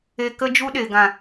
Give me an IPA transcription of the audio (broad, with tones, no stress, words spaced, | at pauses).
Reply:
e˧ kə˦d͡ʒu˦ɗe˨ ɡã˨